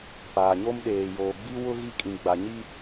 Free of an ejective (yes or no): no